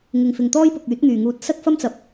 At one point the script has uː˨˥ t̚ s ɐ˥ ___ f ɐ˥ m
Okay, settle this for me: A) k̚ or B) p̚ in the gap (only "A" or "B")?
A